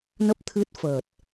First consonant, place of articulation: alveolar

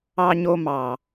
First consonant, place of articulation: palatal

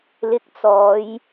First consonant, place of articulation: alveolar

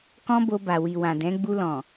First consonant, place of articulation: velar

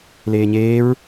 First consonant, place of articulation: alveolar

